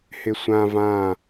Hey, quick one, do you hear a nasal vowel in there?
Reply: yes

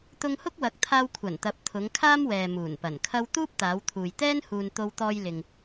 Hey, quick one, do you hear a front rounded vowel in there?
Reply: no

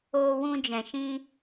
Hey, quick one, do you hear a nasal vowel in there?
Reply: yes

